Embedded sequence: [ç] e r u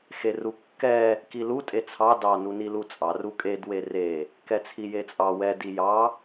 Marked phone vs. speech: incorrect: x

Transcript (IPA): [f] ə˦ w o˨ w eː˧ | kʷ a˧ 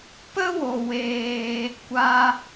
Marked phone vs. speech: incorrect: p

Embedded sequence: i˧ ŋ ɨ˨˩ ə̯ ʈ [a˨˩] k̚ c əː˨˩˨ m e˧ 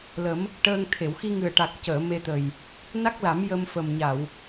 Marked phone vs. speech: correct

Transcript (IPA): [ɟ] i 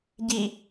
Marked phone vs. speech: correct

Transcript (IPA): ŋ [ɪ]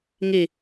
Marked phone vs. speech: incorrect: i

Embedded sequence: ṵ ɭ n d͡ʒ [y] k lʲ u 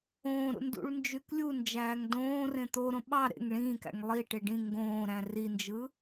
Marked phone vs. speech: correct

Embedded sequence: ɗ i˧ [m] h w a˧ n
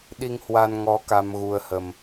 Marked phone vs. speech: incorrect: ŋ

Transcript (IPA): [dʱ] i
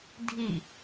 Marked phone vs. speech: correct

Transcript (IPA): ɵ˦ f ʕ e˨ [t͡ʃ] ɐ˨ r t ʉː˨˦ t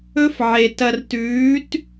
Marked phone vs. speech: incorrect: t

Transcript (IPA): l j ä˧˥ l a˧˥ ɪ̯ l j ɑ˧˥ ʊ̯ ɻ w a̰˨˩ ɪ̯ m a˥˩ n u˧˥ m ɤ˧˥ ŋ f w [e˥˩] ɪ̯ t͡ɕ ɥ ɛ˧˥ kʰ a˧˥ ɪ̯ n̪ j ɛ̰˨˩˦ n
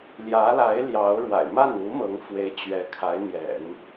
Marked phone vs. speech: incorrect: e˧˥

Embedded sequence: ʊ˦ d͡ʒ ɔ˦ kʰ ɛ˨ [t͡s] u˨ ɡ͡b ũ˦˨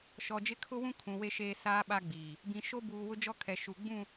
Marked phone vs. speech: incorrect: ʃ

